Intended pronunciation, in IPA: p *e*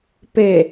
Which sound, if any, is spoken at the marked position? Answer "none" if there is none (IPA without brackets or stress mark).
e